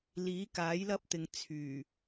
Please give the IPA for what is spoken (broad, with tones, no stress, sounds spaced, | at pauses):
l iː˨˥ k aː˨˥ j l ɐ˥ p̚ t̪ ɪ˨ ŋ t͡sʰ yː˨˩